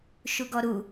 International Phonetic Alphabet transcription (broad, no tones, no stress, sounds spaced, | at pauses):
ʃ u ɡ ɔ ɾ u